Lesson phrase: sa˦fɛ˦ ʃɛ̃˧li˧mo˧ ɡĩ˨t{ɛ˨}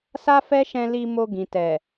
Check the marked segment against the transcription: correct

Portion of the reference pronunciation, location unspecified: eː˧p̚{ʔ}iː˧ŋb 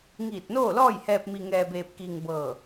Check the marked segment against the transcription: incorrect: k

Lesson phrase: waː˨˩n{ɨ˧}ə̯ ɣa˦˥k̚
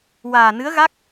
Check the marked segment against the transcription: incorrect: ɨ˧˥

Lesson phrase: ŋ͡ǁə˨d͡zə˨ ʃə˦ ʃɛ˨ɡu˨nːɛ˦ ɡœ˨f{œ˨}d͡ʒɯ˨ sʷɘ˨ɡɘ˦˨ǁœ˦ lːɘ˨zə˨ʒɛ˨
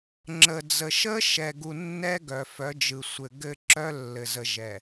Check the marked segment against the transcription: incorrect: œ˨˦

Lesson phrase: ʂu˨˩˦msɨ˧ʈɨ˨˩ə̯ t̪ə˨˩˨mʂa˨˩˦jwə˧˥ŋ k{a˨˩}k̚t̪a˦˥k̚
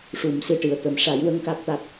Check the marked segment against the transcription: incorrect: a˦˥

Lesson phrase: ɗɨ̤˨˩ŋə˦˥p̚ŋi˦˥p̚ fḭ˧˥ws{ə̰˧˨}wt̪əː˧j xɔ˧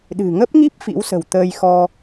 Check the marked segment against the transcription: incorrect: ə̤˨˩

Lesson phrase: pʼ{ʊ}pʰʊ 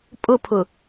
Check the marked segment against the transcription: correct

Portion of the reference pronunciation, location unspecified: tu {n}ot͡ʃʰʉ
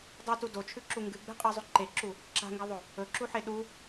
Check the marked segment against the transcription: incorrect: d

